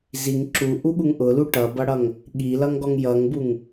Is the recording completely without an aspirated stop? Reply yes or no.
yes